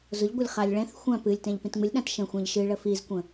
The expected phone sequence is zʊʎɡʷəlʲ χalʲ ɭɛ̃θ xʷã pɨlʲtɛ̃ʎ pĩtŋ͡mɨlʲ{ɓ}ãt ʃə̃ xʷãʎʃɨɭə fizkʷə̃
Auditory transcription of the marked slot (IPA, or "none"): ɗ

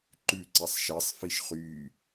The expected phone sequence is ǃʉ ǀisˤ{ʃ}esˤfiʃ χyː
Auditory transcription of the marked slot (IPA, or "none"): ʃ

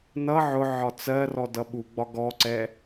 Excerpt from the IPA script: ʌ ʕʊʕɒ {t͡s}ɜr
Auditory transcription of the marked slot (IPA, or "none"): t͡s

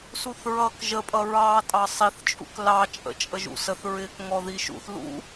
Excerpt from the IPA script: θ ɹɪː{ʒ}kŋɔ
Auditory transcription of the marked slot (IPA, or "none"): none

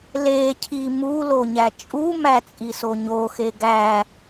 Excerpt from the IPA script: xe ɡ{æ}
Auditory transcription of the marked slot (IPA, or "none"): æ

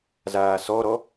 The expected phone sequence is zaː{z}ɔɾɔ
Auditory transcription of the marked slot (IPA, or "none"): s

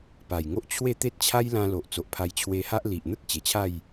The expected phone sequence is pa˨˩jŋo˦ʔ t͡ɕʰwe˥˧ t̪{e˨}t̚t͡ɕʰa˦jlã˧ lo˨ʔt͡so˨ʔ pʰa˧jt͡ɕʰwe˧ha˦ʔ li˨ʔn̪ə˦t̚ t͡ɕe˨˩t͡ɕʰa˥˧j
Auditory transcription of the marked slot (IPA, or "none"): e˦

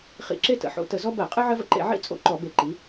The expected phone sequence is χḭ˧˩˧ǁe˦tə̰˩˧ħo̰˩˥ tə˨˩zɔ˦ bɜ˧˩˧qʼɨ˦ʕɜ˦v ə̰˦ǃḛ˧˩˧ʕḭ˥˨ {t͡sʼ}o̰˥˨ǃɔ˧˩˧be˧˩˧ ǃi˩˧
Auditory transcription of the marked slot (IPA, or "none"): t͡sʼ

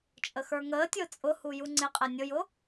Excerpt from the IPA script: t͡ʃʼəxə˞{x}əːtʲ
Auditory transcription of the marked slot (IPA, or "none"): ŋ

